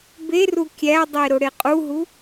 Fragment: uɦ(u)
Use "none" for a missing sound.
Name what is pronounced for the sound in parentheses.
u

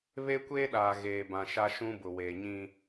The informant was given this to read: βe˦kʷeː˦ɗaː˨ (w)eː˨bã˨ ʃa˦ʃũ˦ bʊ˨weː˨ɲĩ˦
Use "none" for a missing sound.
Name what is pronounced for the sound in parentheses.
ɣ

